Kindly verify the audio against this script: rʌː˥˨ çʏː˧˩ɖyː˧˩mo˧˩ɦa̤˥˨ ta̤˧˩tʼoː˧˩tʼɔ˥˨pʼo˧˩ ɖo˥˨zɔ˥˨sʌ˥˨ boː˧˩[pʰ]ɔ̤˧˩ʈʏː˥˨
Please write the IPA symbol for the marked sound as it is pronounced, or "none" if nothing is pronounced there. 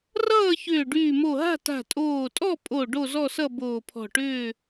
pʰ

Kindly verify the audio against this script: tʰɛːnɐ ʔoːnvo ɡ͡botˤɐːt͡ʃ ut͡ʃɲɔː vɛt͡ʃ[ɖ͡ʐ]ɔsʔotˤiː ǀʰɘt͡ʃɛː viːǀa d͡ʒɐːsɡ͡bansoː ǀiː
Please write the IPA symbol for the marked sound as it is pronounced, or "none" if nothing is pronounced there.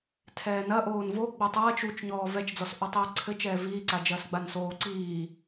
d͡z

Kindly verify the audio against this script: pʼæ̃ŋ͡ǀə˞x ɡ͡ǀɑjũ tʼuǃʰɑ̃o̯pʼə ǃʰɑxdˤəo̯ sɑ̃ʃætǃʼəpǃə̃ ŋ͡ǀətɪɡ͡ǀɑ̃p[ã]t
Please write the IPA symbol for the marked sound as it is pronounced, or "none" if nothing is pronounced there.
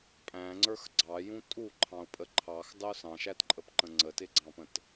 ə̃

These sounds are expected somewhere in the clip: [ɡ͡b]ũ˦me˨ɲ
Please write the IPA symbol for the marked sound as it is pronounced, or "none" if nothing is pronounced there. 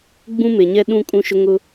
ɡ͡b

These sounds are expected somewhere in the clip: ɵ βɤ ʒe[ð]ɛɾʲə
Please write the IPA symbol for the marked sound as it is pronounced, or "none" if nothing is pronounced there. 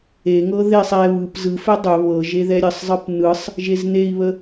ð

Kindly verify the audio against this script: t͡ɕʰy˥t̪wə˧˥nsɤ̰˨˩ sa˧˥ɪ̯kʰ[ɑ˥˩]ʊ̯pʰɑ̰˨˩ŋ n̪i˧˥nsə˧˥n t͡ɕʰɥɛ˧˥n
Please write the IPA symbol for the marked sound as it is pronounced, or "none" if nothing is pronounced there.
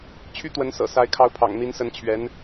ɑ˧˥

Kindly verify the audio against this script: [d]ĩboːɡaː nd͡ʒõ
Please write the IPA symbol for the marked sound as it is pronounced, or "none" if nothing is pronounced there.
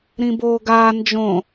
ɾ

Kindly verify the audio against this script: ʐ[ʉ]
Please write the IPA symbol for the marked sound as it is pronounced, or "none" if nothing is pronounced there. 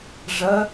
ə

